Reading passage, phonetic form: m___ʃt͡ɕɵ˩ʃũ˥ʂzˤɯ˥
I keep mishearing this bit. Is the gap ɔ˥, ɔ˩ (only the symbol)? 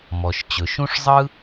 ɔ˩